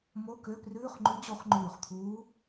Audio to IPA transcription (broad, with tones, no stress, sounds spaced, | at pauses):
m o˧˥˧ k ø˧˥˧ p r ʉː˧˥˧ χ ŋ͡ǃ ʉ˧˥ d͡ʑ o˧˥ χ ŋ͡ǃ ʉː˧˩ χ t̪ʰ uː˧˥